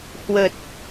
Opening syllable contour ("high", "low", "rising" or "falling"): low